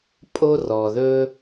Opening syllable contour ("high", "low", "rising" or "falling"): high